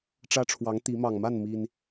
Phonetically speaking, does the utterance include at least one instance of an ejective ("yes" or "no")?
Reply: no